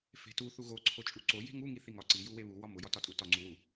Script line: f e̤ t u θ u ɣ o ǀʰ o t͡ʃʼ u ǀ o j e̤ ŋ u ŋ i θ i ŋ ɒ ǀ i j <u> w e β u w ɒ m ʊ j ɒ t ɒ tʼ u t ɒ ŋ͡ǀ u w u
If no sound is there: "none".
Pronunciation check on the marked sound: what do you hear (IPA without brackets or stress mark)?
u